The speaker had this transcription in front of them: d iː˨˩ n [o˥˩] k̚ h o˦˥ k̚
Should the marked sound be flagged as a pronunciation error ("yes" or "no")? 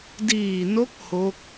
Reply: yes